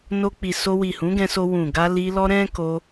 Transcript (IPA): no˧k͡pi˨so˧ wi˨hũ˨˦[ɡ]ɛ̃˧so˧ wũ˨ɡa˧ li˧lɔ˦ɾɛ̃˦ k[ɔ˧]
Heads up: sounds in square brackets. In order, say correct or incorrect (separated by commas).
correct, incorrect